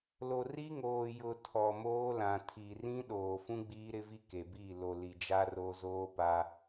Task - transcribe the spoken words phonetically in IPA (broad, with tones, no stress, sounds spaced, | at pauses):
l o˨ r i˦ ŋ oː˨ j ʊ˨ tʰ ɔ˨ m oː˦ l ã˨ tʰ i˨ r ĩ˦ ɗ oː˨ f ũ˦ ɡ͡b iː˦ ɾ ɪ˦ v i˦ k e˨ b i˦˨ l o˨ l i˨ d͡ʒ a˦ r o˦ z oː˦ p a˦